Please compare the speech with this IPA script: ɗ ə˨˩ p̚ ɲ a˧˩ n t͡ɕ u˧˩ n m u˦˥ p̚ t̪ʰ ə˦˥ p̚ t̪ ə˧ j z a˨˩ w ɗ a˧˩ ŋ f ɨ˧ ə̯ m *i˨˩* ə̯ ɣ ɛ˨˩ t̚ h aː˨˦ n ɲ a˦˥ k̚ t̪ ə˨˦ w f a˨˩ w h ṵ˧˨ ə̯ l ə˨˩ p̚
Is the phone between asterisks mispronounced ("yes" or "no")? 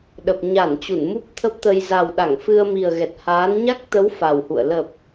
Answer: no